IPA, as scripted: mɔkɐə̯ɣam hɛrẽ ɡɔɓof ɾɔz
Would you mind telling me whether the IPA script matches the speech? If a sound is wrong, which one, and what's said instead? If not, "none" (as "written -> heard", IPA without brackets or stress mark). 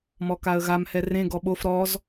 ɐ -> a